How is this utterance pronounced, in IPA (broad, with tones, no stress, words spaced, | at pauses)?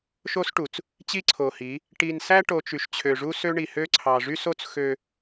ʃo˦sʈu˨t͡s | t͡ɕi˦ǀʰo˨hi˨˦ | ʈi˨nsæ˦ʈo˨ t͡ʃy˨ʃt͡ɕʰø˨ʐu˦sø˦ ɳi˨hø˦ǀʰɑ˨ ʐy˦so˦t͡s xø˦